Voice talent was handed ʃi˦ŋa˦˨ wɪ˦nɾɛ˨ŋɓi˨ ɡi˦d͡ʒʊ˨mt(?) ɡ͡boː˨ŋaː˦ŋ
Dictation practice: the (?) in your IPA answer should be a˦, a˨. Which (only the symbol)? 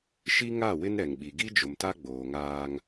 a˦